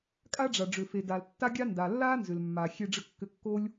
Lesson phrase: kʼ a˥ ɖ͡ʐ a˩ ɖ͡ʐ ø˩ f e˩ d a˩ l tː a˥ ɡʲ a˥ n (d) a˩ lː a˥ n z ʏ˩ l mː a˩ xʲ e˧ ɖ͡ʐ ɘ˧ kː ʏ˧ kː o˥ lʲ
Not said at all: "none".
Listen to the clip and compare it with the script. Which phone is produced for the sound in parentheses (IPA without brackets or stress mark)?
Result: d